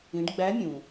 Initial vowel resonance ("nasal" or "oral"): nasal